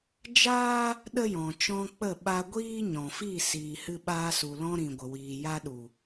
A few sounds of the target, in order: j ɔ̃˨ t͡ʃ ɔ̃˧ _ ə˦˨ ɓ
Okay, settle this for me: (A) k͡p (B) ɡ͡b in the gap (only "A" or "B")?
A